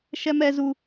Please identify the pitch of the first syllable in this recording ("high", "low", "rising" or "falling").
high